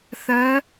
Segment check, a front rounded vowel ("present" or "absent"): absent